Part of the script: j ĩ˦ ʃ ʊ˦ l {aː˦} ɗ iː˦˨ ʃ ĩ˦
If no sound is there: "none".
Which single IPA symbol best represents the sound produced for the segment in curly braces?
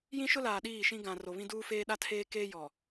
aː˨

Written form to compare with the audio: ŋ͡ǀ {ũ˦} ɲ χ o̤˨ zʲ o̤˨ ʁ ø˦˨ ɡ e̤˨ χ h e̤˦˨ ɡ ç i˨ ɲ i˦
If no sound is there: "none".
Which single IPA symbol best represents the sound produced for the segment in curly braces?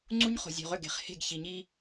u˦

